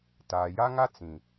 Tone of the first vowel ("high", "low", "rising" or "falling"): low